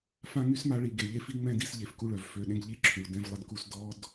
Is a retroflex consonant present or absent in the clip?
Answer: present